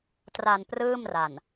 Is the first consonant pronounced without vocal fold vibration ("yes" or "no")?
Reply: yes